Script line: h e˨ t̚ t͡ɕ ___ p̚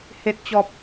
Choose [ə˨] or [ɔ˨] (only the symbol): ɔ˨